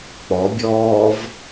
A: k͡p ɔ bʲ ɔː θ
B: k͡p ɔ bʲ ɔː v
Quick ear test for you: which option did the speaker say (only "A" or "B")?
B